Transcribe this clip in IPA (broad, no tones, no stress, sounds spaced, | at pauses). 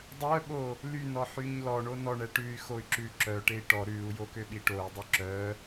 dˤ œ ɓ o | l y n ɔ ħ y ɲ l ɔ ɳ o n ɔ ɳ ɛ ʈ ʉ y̯ x o y̯ ǁ ʉ ǁ œ ʈ e i̯ ʈ ɔ ɾ ʉ u̯ j o k ø ɓ i ʈ o y̯ dˤ œ ǁ œ